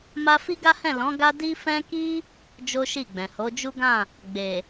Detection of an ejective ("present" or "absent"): absent